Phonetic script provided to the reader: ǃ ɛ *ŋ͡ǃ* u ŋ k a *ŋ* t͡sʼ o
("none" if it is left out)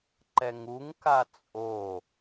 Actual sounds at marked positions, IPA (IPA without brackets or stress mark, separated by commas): ŋ, none